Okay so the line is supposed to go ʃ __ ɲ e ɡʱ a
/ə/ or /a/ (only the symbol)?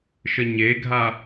ə